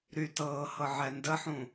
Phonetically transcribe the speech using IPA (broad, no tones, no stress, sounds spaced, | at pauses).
ɾ y t ɤː h ɤ ʕ ɛ n d ə ħ ũ